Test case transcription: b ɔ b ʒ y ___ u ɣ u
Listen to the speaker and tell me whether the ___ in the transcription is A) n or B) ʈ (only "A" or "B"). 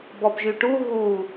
B